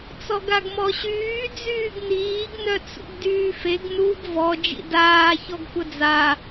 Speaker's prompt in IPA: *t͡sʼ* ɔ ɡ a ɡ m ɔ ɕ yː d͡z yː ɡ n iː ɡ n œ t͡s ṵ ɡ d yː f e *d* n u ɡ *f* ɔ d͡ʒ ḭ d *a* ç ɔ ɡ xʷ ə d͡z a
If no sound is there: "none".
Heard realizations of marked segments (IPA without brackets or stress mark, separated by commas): t͡s, ɡ, v, aː